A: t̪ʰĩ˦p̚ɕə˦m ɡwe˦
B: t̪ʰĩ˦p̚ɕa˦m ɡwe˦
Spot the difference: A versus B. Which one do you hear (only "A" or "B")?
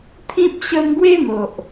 A